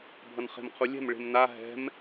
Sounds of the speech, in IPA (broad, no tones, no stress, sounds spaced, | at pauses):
bʱ ʌ n χ e̤ m qʰ u lʲ ɛ̤ m ɭ e̤ m n a ɦ ɛ̤ m